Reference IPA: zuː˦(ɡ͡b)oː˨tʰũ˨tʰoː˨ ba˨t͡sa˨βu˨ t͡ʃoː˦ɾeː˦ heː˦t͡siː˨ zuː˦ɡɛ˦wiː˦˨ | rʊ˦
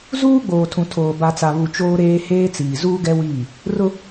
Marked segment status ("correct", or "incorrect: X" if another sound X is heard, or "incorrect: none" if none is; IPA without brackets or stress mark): correct